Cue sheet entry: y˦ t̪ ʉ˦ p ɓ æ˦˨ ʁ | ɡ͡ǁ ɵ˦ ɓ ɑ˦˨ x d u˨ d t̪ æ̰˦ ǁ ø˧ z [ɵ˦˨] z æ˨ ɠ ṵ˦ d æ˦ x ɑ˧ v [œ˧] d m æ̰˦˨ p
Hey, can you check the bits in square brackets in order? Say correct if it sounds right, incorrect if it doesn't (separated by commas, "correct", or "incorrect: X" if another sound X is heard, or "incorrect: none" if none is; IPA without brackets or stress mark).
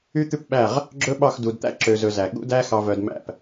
incorrect: ɵ˧, correct